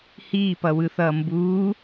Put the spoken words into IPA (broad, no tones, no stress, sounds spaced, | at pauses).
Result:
h iː p ʌ w ɯ θ ʌː m b uː